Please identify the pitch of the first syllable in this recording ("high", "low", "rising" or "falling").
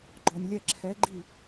low